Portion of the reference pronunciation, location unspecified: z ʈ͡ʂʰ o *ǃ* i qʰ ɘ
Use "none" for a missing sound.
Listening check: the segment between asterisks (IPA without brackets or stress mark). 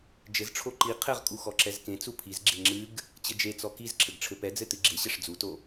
ǃ